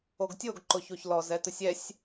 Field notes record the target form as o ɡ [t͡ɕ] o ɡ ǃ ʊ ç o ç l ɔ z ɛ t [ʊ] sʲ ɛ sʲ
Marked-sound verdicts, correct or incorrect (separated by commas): incorrect, correct